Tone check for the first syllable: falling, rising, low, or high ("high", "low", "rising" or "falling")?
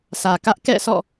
low